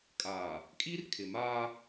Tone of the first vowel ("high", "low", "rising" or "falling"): low